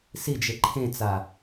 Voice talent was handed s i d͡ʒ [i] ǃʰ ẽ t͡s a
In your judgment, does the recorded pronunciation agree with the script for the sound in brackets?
no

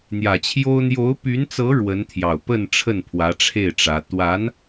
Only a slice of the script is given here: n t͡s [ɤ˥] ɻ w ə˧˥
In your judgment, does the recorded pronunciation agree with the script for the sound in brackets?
no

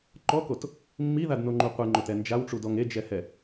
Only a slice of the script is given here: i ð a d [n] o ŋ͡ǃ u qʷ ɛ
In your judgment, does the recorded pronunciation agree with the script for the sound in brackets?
yes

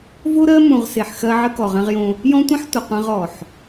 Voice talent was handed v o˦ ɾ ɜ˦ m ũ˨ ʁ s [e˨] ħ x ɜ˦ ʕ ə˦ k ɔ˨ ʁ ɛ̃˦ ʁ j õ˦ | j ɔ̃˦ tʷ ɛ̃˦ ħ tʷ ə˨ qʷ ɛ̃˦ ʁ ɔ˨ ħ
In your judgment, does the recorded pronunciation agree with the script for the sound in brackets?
yes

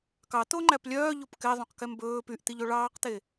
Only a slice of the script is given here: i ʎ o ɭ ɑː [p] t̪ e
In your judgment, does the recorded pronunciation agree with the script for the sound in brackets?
no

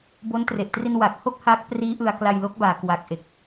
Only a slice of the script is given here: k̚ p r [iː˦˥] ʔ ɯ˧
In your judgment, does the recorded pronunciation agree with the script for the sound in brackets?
yes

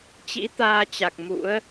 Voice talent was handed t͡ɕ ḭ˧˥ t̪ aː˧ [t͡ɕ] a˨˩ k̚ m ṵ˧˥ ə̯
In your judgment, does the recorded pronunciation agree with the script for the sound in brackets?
yes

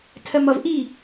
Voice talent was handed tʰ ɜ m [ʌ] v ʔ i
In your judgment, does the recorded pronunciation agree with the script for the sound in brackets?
yes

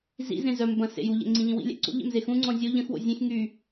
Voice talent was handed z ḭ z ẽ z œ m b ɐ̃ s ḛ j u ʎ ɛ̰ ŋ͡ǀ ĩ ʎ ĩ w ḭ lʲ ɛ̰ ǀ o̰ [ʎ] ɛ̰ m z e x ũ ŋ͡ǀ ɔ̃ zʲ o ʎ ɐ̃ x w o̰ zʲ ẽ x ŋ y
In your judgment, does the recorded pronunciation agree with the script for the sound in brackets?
yes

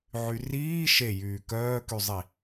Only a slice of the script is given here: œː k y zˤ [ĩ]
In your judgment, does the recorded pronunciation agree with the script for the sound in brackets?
no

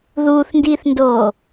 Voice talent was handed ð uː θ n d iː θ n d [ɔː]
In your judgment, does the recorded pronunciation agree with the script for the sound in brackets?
no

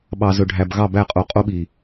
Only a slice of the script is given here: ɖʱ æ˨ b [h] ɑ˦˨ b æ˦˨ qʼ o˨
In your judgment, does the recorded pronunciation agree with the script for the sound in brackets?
no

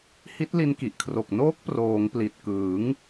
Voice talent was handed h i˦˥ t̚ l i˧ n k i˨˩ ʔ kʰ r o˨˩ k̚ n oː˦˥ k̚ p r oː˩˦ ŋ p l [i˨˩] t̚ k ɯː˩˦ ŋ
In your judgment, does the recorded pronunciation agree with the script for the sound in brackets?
yes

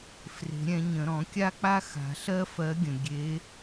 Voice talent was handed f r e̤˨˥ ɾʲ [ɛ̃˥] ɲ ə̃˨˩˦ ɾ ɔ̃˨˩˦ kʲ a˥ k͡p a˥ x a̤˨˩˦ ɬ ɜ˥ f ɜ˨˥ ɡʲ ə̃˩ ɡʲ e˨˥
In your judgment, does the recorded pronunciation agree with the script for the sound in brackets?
no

